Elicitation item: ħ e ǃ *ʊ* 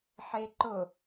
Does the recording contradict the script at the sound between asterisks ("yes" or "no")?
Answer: no